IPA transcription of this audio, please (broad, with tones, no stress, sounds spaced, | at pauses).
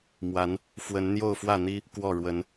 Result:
m w a˨˦ n | f w ə˨˦ n n̪ j o˥˨ ʊ̯ f w ä˥˨ n̪ i˦ | k w ɔ˥˨ ɻ w ə˨˦ n